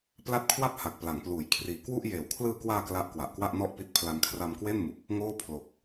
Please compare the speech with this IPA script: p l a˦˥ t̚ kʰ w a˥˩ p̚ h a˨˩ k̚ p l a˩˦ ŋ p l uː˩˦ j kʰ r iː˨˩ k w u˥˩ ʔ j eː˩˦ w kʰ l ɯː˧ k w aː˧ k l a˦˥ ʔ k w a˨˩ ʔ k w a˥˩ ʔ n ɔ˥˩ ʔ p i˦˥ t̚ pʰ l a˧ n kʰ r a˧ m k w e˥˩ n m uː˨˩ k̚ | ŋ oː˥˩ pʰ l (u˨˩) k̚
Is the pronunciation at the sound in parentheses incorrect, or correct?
incorrect